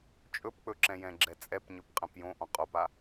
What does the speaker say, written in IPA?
t͡ʃʼ ɵ p k͡p ɵ ǁ ɛ̃ j ɛ̃ ɡ͡ǁ ɛ t͡sʼ ɛ p ɲ ɵ p qʼ ɛ̃ p j õ ʔ ɔ̃ qʼ o p a

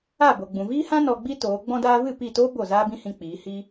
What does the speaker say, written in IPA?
a˦˨ b o˨ ɡ͡b ũ˨ v iː˦ h ã˦ n ɔ˧ ɡ͡b i˦ t oː˨˦ ɡ͡b ɔ̃˧ d aː˧ v ɨ˦˨ p i˦˨ t oː˦ b o˦˨ z aː˦ b ĩ˦ h ĩ˧ k͡p iː˨˦ h i˦

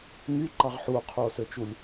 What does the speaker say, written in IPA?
ŋ y ǃ ɑ ʁ ħ u o̯ qʰ u o̯ s ø t͡ʃ u lʲ

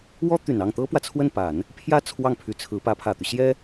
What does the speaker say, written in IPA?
w ɔ˥ t̪ y˨˩ n ɑ˥˩ ŋ t̪ ɤ˥ p w ä˨ t͡sʰ w ə˥˩ n p a˨˩˦ n | pʰ j ä˥˧ t͡sʰ w ɑ˥˩ ŋ pʰ y˧˥ t͡sʰ ɹ̩˧˥ p ä˧˥ pʰ ä˨˩ t̪ y˦ ɕ j ɛ˥

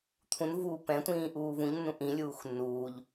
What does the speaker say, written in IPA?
t̪ʰ ũ n v uː p ɛ̃ tʷ ĩː ʔ uː v ũ ʎ nː ũ ʔ ĩ lʲ uː x nː uː ʎ

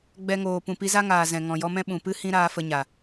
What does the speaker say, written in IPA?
ɡ͡b ɛ˧ ŋ oː˨ p ũ˨ p i˧ z a˦ ŋ aː˨ z ɛ̃˨ ŋ ɔ̃˨ j ɔ˧ m ɛ̃˦ ɓ ũ˨ p ɨ˦ h ĩ˦ ɾ aː˧ f ə˧ ɲ a˨

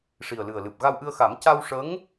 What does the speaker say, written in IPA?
ʂ i˨˩ ə̯ l ɨ˨˩ ə̯ l ɨ˨˩ p̚ ɣ a˧ w ʔ ɨ˧ ə̯ x a˨˩˦ m c a˧ w ʂ ə˧˥ ŋ

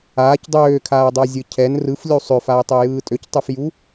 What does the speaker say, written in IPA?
aː c dˤ øː kʰ aː ə̯ dˤ a zʲ ɯ cʰ ɛ n r ɯ f lʲ u sˤ ø f a ɪ̯ tˤ ø j ɯː tʼ ø c tˤ ɯ f j u

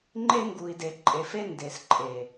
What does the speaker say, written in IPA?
ŋ͡ǃ e˦ ŋ ɡ u˨ i̯ d e˨ ǃʼ e˨ f e˦ n d e˨ s ǃʼ e˨

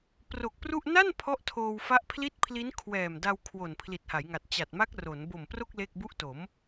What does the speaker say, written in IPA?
p r o˨˩ k̚ p r u˥˩ ʔ n a˥˩ n pʰ ɔ˥˩ ʔ tʰ oː˧ w f a˦˥ ʔ pʰ l i˥˩ t̚ pʰ l i˦˥ n kʰ w ɛː˨˩ m d a˧ w kʰ w o˨˩ n pʰ l i˨˩ t̚ h a˩˦ j ŋ a˨˩ t̚ t͡ɕ a˨˩ t̚ m a˦˥ k̚ r o˩˦ n b o˨˩ m p r o˥˩ k̚ l e˥˩ k̚ b u˦˥ ʔ t o˩˦ m

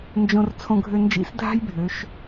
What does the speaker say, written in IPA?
n d͡ʒ õ˧ r t͡sʰ õ˧ ɡʱ ø˧ n d͡ʒ ḭ˧˥ s dʱ a̤˥ j bʱ ø˩˧ ʃ

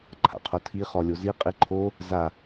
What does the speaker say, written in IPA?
ǃʰ a̰ qʰ o tʰ i χ ɔ lʲ o z i qʼ i ǃʰ o | z a

